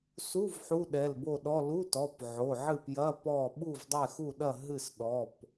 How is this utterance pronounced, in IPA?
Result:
su˧˥˧v ħu˧˥˧ɗɛ˩˧˩lbo˥˨ɗɔ˧˥˧ lu˧˥˧tɔ˩˧˩p ʕo˩˧˩ʕɨ˥˨pjɐ˧˥˧ pɔ˥˨ ɓu˥˨vdˤɛ˥˨xu˥˨ɗɐ˥˨ ɦɨ˥˨sɗɔ˩˧˩p

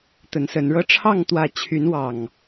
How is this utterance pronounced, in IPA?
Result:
t̪ə˨˦nsə˨˦nɻɤ˦ ʈ͡ʂʰɑ˥˨ŋ t̪wä˥˨ t͡ɕʰy˨˦nwɑ˨˩ŋ

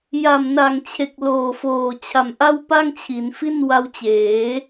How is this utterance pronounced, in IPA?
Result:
ja˨˩mna˨˩ŋt͡ɕʰe˨˩k̚ loː˨˩foː˨˩ t͡ɕʰa˨˩mʔa˥˩wpa˥˩ŋt͡ɕʰi˩˦n fi˥˩nwa˦˥wt͡ɕeː˩˦

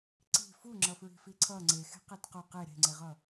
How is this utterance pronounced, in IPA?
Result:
ǀi̤ fu ŋ͡ǁʌfɹi̤fiǀʰʌ ŋ͡ǀexe̤qet qo qe ɾe̤ŋ͡ǀeʁʌ

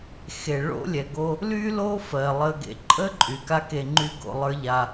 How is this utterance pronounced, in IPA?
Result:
xe˩ɭo̰˥ lʲɛ˩ɡo˧ | ly˥lo˥fɜ˩ lˠə˧ɡḛ˧ ǃʼə˥ ǃʼy˩ka˥ke˧ŋ͡ǃy˥ ɡo̰˧lˠə˞˥ʎa˧

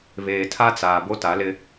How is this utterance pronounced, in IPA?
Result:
βeː˨tʰa˦t͡saː˨ bo˦ta˨˦lɪ˦

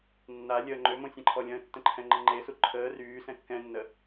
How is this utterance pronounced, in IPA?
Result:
nːa lʲəːŋ͡ǃømõ sʲɛ̃ǃʰɔlʲə̃ːtːə̃ ǃʰɛ̃ŋ͡ǃəŋ͡ǃesu ǃʰəː ryːsɛ̃ kːɛ̃nːə

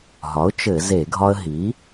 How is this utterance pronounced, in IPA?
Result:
ɦɒ˩˥ʊ̯ t͡ʃɘ˧˩˧ ze˧˩˧ɡʱɒ˦ə̯ ɦi˩˥

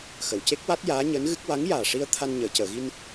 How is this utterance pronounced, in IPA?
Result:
xə˨˩˨wce˦˥k̚wa˦˥t̚ jaː˧˥ɲəː˧˥nɣɨ˦˥k̚ wa˧˥ŋjaː˨˩ʂi˧ə̯ t̪ʰa˧nɲəː˨˩˨cəː˨˩˨ɣi˧n

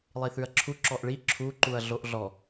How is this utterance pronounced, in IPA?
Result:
lˠiθʉɐ̯ǁʰu ǁɔʔɭi ǁʰu ǃuɐ̯ɮoʔɮɔ

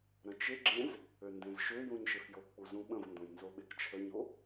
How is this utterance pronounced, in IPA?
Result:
ɾə̃t͡ʃeɡ͡ǁẽz | øndẽzʃøjũɲ ʃefjokk͡pu zũɓə̃vndõj nzoɓekt͡ʃʰəɲo

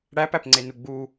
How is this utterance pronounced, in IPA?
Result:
ɽæpæpŋ͡ǀenu ɡ͡bu

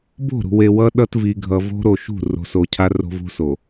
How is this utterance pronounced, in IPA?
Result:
bo̤˦˨ɾṳ˨we˨ wʌ˦ɗʌ˦t vi˨ɡʱʌ˨ vo̤˦ɾo˨ ʃṳ˦˨ ro̤˨˦so˨cʰa˦ ro̤˦vṳ˦so˨

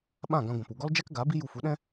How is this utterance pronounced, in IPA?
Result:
ɓã˦˨ ɡã˧ɡʷã˨p u˨ɡɔ˦ld͡ʒɛ˦k ɡa˨˦ bi˦ju˧fu˨˦ɗɛ̃˦

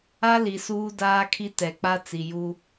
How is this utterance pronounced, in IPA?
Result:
a˦ li˨suː˦daː˦kʰi˦ tɛ˨k͡pa˦ t͡si˨ju˦

